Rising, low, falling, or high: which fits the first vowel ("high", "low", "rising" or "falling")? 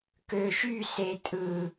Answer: low